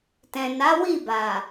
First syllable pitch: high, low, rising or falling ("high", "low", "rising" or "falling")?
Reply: low